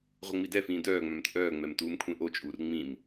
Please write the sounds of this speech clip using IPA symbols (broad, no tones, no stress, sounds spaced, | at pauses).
ʁʷ ə ŋ͡m i d ɛ f ĩː d œː ŋ͡m œ̃ m t͡sʼ œː ŋ͡m ɛ m t uː m kʷʰ ẽ ʔ o t͡ʃʼ uː r ŋ͡m ĩ m